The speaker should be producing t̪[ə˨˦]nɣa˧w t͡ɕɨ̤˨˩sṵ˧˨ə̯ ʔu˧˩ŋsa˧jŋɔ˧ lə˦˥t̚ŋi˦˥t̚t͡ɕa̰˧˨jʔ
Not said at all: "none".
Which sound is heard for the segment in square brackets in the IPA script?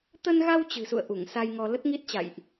ə˧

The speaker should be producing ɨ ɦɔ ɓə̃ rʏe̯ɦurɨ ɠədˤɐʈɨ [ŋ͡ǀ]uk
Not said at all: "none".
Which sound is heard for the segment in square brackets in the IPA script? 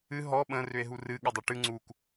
ŋ͡ǀ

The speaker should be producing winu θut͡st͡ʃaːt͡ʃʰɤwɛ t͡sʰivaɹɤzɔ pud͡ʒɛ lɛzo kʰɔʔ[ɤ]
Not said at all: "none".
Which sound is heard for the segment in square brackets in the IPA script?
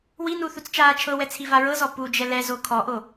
o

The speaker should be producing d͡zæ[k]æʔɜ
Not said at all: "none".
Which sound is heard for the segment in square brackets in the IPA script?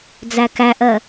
k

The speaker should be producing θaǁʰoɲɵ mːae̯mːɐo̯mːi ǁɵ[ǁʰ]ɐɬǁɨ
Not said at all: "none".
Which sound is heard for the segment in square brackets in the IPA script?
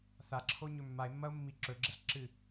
ɡ͡ǁ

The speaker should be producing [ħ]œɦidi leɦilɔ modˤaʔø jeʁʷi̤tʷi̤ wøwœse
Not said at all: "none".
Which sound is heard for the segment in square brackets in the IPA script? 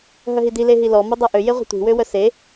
ɦ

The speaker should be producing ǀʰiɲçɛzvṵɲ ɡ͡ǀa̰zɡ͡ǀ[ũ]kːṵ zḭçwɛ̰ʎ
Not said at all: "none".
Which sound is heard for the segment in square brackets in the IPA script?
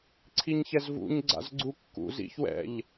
u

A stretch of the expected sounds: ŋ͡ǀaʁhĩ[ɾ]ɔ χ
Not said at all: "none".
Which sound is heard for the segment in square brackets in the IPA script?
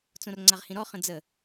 ɾ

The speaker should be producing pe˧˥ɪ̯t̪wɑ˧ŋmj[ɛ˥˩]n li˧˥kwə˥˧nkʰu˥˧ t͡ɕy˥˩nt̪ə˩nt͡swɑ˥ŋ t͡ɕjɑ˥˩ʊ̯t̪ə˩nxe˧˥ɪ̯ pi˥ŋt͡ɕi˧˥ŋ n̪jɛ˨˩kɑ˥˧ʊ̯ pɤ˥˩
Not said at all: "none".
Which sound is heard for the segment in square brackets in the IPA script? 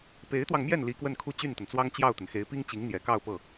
ɛ˥˩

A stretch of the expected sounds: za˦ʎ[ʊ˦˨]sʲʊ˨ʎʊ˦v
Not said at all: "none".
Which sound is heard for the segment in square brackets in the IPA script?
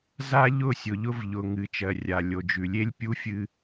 ʊ˦˨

